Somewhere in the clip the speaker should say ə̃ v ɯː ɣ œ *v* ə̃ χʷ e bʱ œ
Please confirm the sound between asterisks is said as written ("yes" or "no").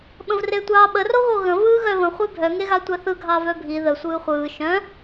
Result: yes